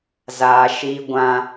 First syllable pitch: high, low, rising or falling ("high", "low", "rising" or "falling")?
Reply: high